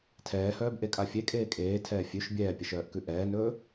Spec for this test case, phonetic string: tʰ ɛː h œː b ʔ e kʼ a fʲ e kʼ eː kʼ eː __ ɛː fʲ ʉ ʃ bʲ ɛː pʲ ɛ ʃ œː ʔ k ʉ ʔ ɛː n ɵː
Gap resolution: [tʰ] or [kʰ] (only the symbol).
tʰ